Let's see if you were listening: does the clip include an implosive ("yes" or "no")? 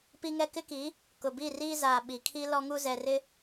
yes